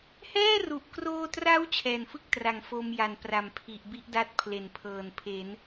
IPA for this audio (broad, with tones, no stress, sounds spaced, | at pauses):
h ɛː˥˩ r u˨˩ ʔ k r oː˧ t r a˦˥ w t͡ɕʰ ɛː˨˩ n f ɯ˥˩ k̚ t r a˩˦ ŋ f o˧ m j a˨˩ n p r a˩˦ m pʰ i˨˩ ʔ b i˥˩ ʔ d a˦˥ t̚ pʰ l e˩˦ n pʰ ɤː˨˩ n pʰ e˩˦ n